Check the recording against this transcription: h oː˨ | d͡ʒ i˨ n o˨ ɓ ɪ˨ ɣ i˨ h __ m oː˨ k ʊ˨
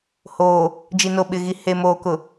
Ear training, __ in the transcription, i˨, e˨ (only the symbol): e˨